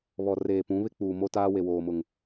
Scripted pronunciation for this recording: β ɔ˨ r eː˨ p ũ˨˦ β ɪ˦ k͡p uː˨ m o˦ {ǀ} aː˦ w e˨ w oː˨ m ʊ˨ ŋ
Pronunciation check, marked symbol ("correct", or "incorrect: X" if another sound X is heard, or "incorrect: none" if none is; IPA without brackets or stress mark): incorrect: t